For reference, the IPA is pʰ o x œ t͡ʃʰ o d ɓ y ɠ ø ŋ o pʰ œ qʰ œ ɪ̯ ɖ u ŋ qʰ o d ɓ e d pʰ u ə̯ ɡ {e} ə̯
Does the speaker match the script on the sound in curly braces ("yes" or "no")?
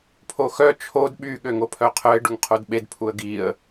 no